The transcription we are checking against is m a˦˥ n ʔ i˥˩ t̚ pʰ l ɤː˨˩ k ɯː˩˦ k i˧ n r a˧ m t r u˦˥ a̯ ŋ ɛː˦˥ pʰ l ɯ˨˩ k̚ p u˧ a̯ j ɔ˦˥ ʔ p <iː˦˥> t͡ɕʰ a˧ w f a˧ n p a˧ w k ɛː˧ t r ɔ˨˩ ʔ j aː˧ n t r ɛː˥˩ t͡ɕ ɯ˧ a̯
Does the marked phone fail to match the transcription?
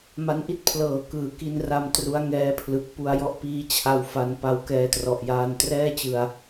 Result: no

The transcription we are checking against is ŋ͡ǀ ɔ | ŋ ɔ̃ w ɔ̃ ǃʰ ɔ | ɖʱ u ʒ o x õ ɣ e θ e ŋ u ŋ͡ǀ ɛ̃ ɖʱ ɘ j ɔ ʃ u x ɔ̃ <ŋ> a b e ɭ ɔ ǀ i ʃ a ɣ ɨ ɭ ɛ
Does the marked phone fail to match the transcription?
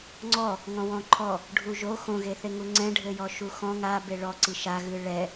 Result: no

